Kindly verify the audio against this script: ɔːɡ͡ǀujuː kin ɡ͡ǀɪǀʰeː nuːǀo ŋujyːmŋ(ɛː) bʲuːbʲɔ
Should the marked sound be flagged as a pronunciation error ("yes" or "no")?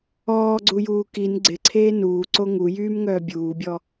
yes